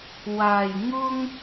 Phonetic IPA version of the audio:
waː˨˩j ŋʊ˥ŋ

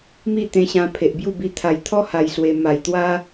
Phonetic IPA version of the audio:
mi˥˧t̪ẽ˧ɕã˧ pʰe˨ʔbju˥˧bi˧ t̪ʰa˨˩jt̪ʰɔ˦ ha˧jswe˧ ma˨˩jt̪wa˦

